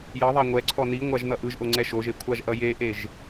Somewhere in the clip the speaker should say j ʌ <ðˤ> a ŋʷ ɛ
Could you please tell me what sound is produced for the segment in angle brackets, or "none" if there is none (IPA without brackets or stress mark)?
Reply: ðˤ